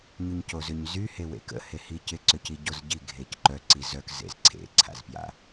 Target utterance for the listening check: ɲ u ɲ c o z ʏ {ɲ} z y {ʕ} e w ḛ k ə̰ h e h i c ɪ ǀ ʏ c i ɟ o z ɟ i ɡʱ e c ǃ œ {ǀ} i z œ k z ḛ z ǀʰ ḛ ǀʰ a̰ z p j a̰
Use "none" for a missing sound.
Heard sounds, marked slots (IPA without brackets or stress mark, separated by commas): ɲ, h, ǀ